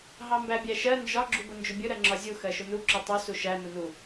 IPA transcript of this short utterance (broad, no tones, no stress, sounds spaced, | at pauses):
ɦ ɑ m b æ bʲ æ ʃ ɜ n d͡ʒ ɒ ɡ͡ǁ u b ʊ n d͡ʒ ʊ bʲ ʊ ɾ ɜ ŋ͡ǁ ɒ zʲ u x ɜ ʃ ʊ n u ǁ ʊ tˤ u s u ʃ æ n ʊ n u